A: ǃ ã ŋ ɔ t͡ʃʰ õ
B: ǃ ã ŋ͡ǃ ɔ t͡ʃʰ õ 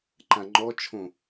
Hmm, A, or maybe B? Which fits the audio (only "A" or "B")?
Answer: B